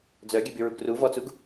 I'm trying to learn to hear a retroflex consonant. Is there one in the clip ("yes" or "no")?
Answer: no